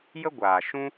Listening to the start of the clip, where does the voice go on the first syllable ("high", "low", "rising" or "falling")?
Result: high